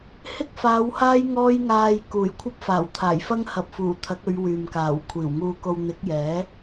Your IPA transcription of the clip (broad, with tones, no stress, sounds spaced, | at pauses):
h ɪ˥ k̚ f aː˨˧ w h aː˥ j ŋ ɔː˥ j ŋ aː˧ j k uː˨˩ j kʷʰ ɐ˥ p̚ f aː˨˩ w t̪ʰ aː˨˩ j f ɐ˥ ŋ h ɐ˨ p̚ f uː˨˩ t̪ʰ ɐ˨˥ k̚ ɵ˨˧ ɥ w yː˨ m k aː˨˩ w kʷʰ iː˨˩ w ŋ uː˧ k o˧ w n̪ ɪ˨˥ k̚ j ɛː˨˥